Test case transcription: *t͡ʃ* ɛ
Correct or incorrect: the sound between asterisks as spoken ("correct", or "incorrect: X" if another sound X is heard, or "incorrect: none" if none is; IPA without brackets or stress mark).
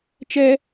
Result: correct